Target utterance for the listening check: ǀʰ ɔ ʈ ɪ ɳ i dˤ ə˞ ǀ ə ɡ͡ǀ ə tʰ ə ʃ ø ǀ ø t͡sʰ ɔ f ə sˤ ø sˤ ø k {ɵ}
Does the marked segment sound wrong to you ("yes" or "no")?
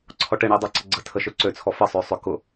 yes